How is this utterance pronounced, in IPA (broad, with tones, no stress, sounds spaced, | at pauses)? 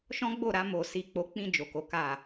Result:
ʃ ɔ̃˦ ɡ͡b o˦˨ ɾ a˧ m o˨ s i˨ k͡p o˨˦ k͡p ĩ˧ d͡ʒ o˨ k o˨˦ k a˦˨